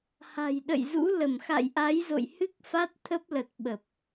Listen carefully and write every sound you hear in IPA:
h a̤˨˩ j ɗ ə̰˧˨ j z ṵ˧˥ l ə˧˩ m x a̰˧˨ j ʔ a˨˦ j z o̰˧˨ j h ɨ˦˥ k̚ f a˦˥ t̚ t̪ʰ ə˦˥ p̚ l ə˨˩ t̚ ɓ ə˨˩ p̚

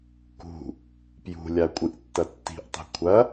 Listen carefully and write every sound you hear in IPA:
k ṳ | p j ṳ lʲ a kʷʼ ɨ ʔ tː ɐ tː i̤ ʔ tˤ i̤ kʷʰ ɐ

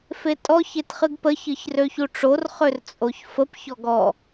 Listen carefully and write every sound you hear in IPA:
f e tʼ ɔ ç e t χ ɨ ɡ p ə ç ɨ ç r ø ç u ʈ͡ʂ o r χ ø r t͡sʼ o ç f ə p ç ɔ ɡ ɔ

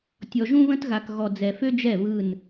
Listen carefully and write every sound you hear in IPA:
tʲ ɔ˨ ʒ ũ˦ β ə̃˦ t ɣ a˨ k ɣ ɔ˨ d͡z ɛ˨ f ø˦ d͡ʒ ɛ˦˨ β ɯ˦˨ n

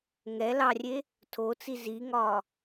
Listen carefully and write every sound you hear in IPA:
ŋ ɛ l ɑ rʲ e | tʰ o t͡s i z i ŋ ɒ

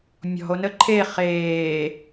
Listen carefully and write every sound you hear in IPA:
mʲ ɔ̤ o̯ n ə ǃʰ e χ eː

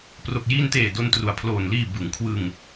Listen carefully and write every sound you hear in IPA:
p r o˨˩ k̚ j iː˧ n t eː˨˩ d o˧ n t r u˩˦ a̯ pʰ l oː˨˩ n l iː˨˩ b ɯ˩˦ ŋ kʰ w ɯ˧ ŋ

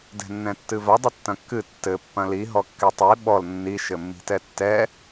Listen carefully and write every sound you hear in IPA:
d ɛ̤ nː ɛ̃ tː ɨ v ɐ dˤ ɘ tː ɐ̃ kː ɨ tː ɘ pː ɐ̃ l i ɦ ɔ kː ɛ tˤ i ɓ ɔ l nː i ʃ ɘ mː i̤ t ɛ tː ɛ

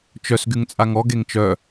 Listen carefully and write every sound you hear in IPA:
t͡ʃ œ s ɡ y ŋ t͡sʼ a ŋ ɔ ɡ e ŋ t͡ʃ œ

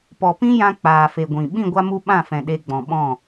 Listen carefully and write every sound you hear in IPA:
p ɔ˨ p ĩ˦ j ã˧ k͡p aː˨ f e˨ ɡʷ ĩ˨ ɓ ĩ˦˨ ɡʷ a˧ m u˧ ɓ ã˦˨ f ɛ̃˨ ɗ e˧ ɡ͡b ɔ̃˨ ɓ ɔ̃˦˨

